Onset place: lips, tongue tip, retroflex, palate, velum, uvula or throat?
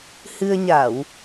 throat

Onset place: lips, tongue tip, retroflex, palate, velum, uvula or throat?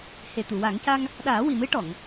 throat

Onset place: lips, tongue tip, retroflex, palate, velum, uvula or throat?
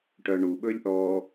retroflex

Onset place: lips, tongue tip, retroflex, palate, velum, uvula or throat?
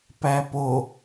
lips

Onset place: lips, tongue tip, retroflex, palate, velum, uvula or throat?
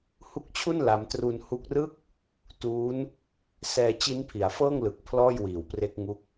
throat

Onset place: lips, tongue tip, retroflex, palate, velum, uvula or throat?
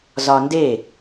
tongue tip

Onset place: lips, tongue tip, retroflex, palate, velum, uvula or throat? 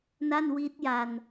tongue tip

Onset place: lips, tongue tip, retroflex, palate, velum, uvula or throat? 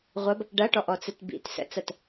uvula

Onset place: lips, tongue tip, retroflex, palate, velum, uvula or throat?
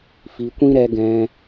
lips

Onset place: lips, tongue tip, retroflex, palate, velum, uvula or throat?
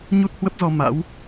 palate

